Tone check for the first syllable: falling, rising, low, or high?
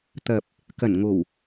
low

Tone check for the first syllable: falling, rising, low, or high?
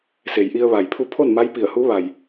low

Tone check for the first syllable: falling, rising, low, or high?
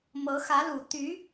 rising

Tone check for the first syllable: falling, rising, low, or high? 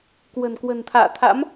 low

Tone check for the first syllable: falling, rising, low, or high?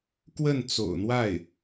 falling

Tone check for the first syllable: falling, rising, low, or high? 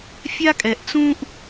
high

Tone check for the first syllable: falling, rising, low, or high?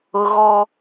high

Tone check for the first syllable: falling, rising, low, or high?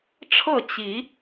falling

